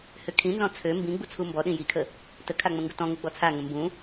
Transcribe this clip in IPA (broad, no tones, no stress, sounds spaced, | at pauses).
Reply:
h ʏ kʰ ĩ n z ɔ̃ t͡sʰ ø m b ĩ ɡ͡b u t͡sʰ u m b ɔ ɗ ĩ j i kʰ ə | t ə kʰ a ŋ͡m ə̃ ŋ ɡ ʊ t ɔ̃ ŋ ʊ ɡ͡b ɔ t͡sʰ a ŋ ə̃ m b ũ